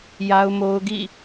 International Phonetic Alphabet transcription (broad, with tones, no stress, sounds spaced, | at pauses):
j a˦ ʊ̯ m o˦ ʊ̯ ɡ ḭ˦˨